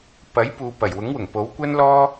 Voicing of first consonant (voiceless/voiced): voiceless